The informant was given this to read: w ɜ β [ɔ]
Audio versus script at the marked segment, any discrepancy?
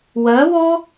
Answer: no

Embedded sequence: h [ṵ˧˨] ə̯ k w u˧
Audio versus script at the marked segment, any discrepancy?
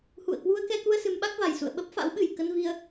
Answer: no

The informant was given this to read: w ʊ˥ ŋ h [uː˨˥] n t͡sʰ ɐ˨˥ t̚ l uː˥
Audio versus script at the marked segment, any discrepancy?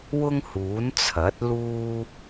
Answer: no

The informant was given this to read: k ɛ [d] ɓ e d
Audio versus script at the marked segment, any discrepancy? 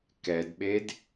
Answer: no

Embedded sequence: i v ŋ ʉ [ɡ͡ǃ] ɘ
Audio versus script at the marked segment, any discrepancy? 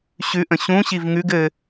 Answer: yes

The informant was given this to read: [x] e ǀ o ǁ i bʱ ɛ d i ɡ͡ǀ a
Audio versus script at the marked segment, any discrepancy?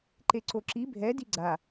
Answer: yes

